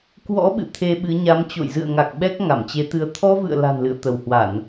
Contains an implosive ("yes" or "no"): yes